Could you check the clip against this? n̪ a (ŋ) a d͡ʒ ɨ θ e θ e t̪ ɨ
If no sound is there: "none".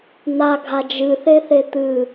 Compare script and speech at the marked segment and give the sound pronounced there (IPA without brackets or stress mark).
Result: ɡʱ